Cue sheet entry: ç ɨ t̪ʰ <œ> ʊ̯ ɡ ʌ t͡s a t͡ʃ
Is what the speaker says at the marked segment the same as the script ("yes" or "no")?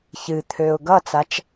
no